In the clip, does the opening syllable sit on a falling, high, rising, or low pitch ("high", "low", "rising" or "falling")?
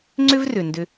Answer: high